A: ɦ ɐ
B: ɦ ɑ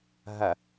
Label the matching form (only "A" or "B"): A